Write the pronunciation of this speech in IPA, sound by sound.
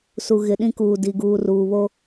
s u˨ ɣ ɪ˨ ɗ ĩ˦ k uː˨ d i˨ ɡ uː˨ r uː˨ β o˦

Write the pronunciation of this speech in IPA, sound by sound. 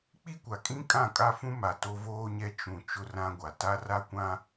k͡p i˦ kʷ a˨ kʼ ĩ˦ kʼ ã˦˨ kʼ a˦ f ũ˦ m a˨ t o˦ v oː˦ ɲ ɛ˦ t͡ʃ ũ˨ t͡ʃ ʊ˦ r ã˦ ɡʷ a˨ t a˦ r a˦ kʷ ã˦

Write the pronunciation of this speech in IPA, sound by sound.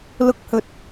l ʊ˨˥ k̚ h ɵ˨ t̚

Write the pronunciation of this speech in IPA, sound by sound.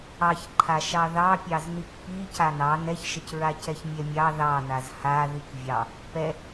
ɑ ç ǃʰ a ʃ ɑ ð ɑ pʲ ɑ z n i k p i c a n ɑ n ɛ ç ʃ ə c ɹ a c ɛ ç mʲ ɛ mʲ ɑ ð ɑ n a z h a ð i k vʲ ɑ | p ɛ

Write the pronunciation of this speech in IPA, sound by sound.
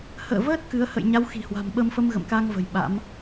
h ə̰ː˧˨ v əː˦˥ t̚ k ɨ˨˦ ə̯ h ə̰˧˨ j ɲ a˨˦ w x i̤˨˩ h w a̤˨˩ m ɓ ə˧ m f ə˧ m ɣ ə̰˧˨ m k a˧ ŋ v ə̤˨˩ j ɓ a̰˧˥ m

